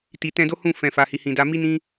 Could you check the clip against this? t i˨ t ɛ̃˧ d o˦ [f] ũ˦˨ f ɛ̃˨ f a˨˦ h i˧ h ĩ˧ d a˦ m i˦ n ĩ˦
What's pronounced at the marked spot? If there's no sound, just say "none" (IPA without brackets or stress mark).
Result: h